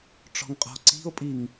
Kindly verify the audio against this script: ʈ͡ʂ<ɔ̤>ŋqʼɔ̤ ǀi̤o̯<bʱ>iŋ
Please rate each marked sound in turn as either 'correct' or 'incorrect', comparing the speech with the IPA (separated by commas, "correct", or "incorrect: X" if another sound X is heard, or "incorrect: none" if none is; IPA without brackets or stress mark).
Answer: correct, incorrect: pʼ